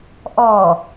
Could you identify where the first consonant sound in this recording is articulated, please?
glottal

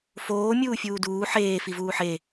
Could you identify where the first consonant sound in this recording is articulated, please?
labial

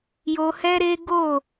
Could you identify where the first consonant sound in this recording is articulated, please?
palatal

